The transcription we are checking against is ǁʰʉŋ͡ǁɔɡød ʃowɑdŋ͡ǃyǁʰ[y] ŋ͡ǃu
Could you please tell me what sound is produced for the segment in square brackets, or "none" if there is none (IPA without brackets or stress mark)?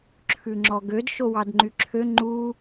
ø